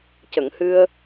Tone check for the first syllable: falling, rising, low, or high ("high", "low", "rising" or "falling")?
low